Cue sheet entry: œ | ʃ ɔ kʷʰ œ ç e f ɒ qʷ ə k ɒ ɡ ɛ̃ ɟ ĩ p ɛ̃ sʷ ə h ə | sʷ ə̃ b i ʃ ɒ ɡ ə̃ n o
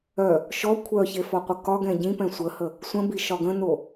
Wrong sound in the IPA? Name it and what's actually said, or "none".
none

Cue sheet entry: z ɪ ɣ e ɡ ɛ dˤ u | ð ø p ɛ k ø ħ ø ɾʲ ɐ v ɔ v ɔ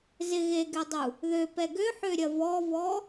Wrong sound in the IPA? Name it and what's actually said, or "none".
k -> ɡ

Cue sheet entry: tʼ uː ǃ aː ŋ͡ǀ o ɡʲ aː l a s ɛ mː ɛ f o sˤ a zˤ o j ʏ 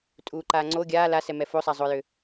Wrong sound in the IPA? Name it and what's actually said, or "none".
mː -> m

